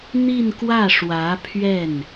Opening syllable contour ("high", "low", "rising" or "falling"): falling